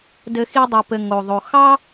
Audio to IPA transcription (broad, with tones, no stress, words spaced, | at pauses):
dɘ˦xi˥dˤɨ˨pɘ˨ ŋo˩ðˤo˩ xɑ˦